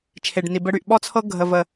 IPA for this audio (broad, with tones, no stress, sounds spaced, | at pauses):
t͡ʃʰ e˨ ɖ n i˨ b ə˦ ɽ y˦˨ ʔ ɓ ɔ˦ t͡sʰ ɤ˦ ɡʱ ə˨ v ə˨